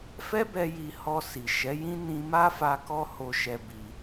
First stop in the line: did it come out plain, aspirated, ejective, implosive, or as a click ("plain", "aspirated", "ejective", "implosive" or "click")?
plain